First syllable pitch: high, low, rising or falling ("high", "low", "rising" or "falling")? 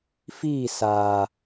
falling